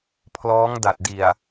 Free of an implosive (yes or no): yes